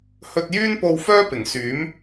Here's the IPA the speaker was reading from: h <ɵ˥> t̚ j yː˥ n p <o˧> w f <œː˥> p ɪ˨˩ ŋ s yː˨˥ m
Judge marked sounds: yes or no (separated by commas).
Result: no, yes, yes